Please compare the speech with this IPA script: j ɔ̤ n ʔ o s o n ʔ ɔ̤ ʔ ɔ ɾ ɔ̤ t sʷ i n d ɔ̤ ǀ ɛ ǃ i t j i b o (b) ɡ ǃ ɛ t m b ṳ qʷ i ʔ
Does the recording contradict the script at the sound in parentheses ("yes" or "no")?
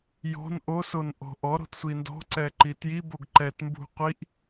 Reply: yes